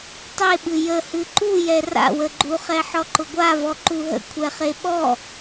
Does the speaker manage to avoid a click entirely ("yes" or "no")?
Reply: no